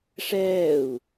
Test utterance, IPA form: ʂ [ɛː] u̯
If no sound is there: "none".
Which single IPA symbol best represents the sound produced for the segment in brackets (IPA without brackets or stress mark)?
ɛː